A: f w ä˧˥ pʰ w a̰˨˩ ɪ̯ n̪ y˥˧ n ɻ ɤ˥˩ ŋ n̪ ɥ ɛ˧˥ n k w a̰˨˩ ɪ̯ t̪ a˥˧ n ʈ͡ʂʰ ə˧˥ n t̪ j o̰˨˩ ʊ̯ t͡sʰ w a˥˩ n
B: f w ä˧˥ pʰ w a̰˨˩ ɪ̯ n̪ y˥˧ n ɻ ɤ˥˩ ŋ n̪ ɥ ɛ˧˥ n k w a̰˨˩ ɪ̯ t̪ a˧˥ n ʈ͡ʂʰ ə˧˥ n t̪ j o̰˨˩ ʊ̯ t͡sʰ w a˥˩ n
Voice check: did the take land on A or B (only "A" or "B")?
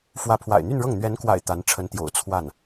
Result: B